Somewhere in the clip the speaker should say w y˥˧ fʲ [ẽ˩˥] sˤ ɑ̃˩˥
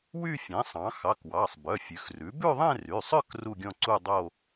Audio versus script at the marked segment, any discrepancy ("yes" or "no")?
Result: no